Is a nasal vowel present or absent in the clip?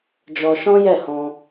present